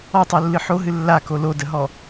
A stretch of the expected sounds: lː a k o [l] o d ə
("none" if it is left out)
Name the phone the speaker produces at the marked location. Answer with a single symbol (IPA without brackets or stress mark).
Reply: l